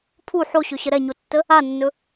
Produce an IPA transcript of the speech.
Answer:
pʰu ħoɕɵɕə ɾɛɲotːə | anːɵ

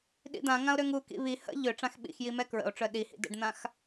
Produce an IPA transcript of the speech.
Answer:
ɗḭd̪ã ŋão̯ɾøŋu kḭβi hə̰ ʎø ʈ͡ʂãxɓḭxji mɛkɹə̰o̯ ʈ͡ʂœɗihḭ də̰ɖn̪ãx

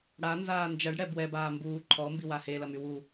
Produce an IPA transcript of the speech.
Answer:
ɽanzaː nd͡ʒɐɖɽɛ bwɛbaː mbuː ǃʰɔmbiwa helɐmy wu

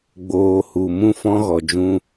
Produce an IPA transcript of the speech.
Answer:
ɡ͡boː˨ hu˨ mũ˧ fɔ̃˧ɣɔ˨d͡ʒũ˧

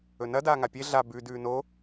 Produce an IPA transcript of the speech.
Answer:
ɵnɐ daːŋapʲe ɮa bʉ dʉːno

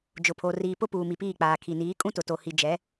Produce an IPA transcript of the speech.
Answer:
d͡ʒʊ˨pʰo˨ riː˨pʊ˦ puː˨mi˨piː˦˨k͡paː˨ kʰi˨niː˨˦ kʼũ˦tʊ˨to˨ hi˨ d͡ʒɛ˨˦

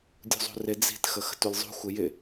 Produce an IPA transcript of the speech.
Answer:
dʲṳzˤṳrɪ d͡zi̤t xəxə̤tulʲzˤṳ xʷɪjɪ

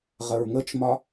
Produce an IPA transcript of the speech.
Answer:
ʁəɹŋət͡ʃmɒ

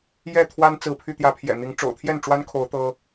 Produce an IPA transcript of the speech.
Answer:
jɛ˥˨t̪ʰwa˦n t͡sɹ̩˨˦pʰy˧t̪jä˨˦pʰjɛ̰˨˩ n̪i˨˦ŋ ʈ͡ʂo̰˨˩ʊ̯t̪ʰjɛ˥˨nʈ͡ʂwa˦nkʰo˨˦ʊ̯ t̪ɤ˦

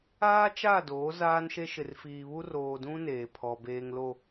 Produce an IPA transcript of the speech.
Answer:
aː˦t͡ʃa˦˨doː˨˦ zaː˦nʃe˦ ʃɪ˨rfiː˨βu˦ roː˨dũ˦ neː˨pʰɔ˨ beː˨ŋlo˨

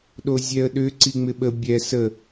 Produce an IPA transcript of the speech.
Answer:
ɗozʲɛə̯ɗʏ ǀiŋ͡mɪɓə bʲɛ sə

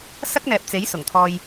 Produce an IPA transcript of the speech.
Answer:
sɐ˥k̚n̪ɛː˨p̚t͡se˨˥j sʊ˨˩ŋt̪ʰɔː˧j

